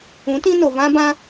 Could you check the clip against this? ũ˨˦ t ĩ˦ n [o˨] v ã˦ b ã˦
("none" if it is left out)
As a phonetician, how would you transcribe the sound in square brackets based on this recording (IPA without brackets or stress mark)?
o˨